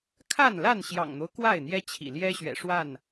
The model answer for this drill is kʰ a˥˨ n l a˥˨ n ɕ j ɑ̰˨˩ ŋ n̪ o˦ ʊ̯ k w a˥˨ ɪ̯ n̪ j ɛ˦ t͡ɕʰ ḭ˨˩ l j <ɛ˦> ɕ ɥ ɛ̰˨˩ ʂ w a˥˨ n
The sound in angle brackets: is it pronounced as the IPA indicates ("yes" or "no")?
yes